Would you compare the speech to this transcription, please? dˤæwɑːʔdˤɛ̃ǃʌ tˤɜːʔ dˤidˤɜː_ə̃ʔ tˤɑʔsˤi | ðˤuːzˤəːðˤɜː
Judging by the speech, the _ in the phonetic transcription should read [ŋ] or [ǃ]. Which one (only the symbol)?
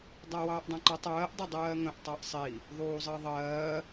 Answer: ŋ